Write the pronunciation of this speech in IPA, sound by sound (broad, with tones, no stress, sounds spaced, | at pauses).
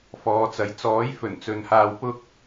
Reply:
f ɔː˨˧ t͡s ɐ˨˧ j t͡s ɔː˨˥ j f ɵ˨˩ n t͡s ɵ˨ n h aː˧ w p ʊ˥ k̚